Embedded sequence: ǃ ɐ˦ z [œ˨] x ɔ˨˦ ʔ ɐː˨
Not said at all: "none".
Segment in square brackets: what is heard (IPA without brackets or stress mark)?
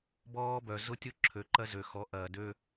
ø˨